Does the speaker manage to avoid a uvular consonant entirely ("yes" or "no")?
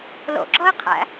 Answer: no